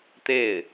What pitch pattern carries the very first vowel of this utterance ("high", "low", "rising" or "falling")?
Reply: falling